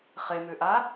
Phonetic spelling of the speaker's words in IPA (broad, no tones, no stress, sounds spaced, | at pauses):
χ e m ʉ ʔ a